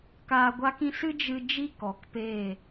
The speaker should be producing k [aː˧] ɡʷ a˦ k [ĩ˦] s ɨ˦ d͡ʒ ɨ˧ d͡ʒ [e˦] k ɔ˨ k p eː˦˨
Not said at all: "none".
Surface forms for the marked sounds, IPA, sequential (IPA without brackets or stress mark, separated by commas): aː˧, ĩ˦, i˦